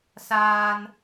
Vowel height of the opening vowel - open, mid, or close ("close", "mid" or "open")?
open